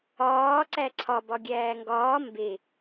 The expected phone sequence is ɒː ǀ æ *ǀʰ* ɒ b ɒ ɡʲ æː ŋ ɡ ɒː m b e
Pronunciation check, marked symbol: correct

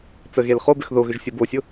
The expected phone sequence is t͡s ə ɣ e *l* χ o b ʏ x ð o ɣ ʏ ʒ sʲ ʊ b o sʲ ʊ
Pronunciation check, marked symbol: correct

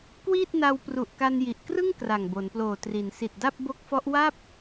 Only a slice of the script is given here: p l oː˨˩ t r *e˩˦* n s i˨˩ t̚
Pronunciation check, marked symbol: incorrect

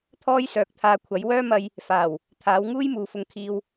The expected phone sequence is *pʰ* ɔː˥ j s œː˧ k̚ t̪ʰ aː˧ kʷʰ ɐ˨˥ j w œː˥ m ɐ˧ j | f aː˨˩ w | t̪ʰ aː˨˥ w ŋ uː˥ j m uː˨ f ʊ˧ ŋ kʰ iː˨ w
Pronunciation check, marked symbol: incorrect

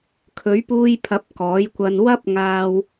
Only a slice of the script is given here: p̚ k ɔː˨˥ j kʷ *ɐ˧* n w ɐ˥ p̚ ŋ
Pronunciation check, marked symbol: correct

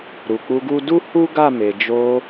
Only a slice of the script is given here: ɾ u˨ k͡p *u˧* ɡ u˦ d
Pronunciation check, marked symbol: correct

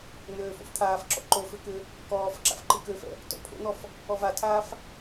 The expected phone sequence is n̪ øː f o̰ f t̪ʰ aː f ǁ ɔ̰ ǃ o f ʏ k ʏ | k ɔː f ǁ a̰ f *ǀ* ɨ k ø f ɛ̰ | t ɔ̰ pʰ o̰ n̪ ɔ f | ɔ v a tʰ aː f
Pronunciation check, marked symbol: incorrect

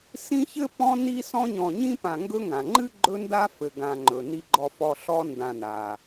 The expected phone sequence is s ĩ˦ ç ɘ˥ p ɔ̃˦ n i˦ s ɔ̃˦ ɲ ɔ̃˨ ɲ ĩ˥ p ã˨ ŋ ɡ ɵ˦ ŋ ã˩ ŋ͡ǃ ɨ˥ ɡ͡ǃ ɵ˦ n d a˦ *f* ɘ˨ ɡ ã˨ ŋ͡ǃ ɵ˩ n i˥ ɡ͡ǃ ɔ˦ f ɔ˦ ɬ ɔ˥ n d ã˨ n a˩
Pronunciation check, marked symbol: correct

